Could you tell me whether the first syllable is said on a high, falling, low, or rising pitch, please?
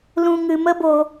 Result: high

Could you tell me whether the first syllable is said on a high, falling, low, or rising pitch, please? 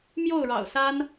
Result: falling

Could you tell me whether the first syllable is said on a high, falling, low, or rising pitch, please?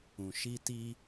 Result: low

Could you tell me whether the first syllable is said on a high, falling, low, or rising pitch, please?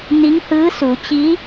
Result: rising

